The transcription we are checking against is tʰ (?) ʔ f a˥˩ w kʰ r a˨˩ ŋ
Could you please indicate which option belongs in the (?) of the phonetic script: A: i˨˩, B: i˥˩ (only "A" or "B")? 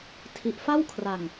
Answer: A